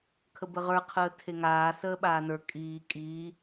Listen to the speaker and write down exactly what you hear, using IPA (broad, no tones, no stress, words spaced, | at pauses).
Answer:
kʰəbəʁə˞ qʰəːtʰeŋaː səːɓaːnə˞ kʼiː kʼiː